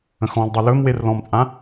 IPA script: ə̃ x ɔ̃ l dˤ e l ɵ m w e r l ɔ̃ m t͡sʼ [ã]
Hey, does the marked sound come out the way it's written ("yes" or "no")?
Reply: yes